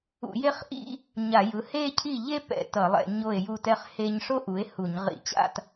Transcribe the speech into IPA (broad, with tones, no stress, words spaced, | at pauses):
ṵ˧˩˧je˥˧χʔḭ˥˧ | ɲa˧˩˧jɯ˩˥ he˥˧cʰi˥˩ʎe˥ pɛ̰˧˩˧tʌ˧˩˧lˠɛ̰˧˩˧ ɲo˥˩e̯ju˥˩tɛ˥χ he˥ɲ ʂo˥ʔu˩˥e̯ hu˧˩˧ɲ ʁḭ˧˩˧t͡ɕa̰˥˧t